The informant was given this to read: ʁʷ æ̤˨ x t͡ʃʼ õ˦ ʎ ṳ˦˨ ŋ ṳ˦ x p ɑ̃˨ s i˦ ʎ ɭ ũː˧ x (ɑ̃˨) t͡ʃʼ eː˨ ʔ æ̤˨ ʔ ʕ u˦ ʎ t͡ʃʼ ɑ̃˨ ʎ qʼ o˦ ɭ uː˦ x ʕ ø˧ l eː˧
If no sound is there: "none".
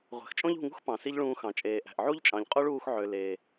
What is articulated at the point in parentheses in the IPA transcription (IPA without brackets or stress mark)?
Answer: ɑ̃˨